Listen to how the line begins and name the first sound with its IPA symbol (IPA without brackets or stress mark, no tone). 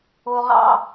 o